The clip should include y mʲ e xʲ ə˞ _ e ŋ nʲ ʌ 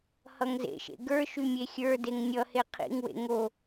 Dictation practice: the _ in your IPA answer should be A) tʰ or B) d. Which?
B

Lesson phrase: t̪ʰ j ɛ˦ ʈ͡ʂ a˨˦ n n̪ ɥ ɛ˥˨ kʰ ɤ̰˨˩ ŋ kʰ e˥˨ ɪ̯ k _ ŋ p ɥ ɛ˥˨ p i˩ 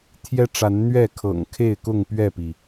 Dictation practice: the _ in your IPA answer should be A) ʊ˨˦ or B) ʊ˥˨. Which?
B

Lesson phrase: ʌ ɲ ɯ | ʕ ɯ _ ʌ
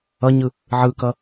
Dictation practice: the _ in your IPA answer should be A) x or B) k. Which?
B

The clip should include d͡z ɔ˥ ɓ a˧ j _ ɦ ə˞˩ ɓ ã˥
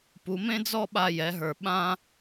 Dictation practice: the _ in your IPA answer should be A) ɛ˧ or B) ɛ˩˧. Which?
B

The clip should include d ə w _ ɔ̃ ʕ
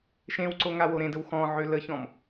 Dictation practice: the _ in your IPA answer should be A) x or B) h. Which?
A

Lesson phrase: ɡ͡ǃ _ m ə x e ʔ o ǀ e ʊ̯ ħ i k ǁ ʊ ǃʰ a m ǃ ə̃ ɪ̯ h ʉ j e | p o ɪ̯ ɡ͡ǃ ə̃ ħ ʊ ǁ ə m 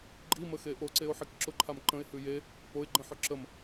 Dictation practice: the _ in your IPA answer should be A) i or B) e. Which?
A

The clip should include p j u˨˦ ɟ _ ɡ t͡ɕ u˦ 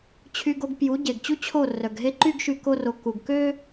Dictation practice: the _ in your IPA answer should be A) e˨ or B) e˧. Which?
A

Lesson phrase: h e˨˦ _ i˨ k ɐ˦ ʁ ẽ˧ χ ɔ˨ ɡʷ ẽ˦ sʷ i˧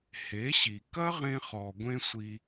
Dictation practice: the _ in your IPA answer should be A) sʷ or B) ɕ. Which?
B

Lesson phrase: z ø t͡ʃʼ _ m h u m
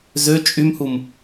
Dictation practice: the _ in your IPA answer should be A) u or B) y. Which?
B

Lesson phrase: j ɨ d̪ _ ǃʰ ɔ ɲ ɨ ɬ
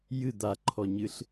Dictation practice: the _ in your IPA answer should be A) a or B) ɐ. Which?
A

